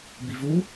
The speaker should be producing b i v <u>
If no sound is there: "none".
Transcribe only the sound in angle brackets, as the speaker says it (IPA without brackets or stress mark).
u